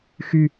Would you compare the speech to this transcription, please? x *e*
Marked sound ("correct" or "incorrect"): incorrect